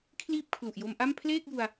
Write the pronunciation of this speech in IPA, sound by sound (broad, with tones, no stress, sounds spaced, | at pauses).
kʰ l iː˥˩ p̚ kʰ l u˨˩ ʔ j o˧ m ʔ a˥˩ m pʰ l eː˥˩ k̚ j u˧ a̯